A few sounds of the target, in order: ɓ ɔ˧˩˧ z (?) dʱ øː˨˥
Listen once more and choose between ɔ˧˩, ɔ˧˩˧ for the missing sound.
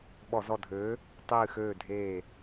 ɔ˧˩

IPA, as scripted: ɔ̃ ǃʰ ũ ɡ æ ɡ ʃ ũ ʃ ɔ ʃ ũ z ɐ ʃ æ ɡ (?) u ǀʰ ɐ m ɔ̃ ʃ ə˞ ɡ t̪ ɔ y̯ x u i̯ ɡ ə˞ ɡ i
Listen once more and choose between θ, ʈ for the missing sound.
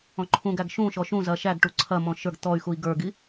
ʈ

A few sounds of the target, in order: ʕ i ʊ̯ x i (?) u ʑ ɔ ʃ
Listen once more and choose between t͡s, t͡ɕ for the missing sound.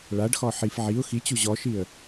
t͡ɕ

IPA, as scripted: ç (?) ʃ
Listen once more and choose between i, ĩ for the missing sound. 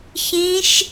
ĩ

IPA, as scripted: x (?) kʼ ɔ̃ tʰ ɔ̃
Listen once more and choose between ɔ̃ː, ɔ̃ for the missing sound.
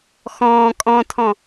ɔ̃ː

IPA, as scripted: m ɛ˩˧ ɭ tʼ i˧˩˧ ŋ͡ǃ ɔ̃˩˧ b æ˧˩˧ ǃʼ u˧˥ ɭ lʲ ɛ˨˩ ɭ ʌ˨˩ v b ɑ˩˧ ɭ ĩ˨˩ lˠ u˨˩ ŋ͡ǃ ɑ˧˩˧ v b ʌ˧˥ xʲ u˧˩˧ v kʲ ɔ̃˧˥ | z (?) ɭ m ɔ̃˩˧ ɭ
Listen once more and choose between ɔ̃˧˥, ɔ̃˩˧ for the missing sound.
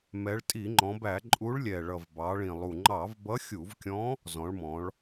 ɔ̃˩˧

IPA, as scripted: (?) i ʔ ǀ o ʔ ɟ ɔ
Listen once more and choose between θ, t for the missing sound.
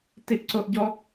t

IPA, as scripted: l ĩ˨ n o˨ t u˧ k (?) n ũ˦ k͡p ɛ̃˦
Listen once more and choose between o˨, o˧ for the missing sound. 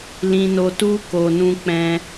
o˧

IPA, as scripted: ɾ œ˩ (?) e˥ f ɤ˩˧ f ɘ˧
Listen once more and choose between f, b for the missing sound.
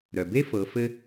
b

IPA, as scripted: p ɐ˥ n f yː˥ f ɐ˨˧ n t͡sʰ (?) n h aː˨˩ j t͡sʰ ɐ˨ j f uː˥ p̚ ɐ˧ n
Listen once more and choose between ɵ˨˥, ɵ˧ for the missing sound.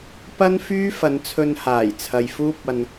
ɵ˧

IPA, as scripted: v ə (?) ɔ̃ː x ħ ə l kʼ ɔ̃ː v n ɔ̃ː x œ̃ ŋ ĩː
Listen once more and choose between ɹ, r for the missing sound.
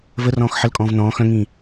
r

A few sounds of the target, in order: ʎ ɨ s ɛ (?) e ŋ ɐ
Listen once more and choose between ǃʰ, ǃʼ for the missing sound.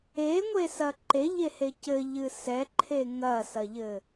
ǃʰ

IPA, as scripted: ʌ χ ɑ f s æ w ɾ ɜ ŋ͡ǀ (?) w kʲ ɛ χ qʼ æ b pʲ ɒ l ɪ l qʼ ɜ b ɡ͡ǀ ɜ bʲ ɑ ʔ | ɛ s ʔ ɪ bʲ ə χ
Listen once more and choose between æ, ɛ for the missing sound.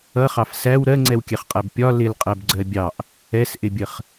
ɛ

